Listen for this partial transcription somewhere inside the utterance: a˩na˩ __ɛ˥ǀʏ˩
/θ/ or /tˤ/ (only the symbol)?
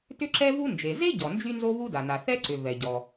θ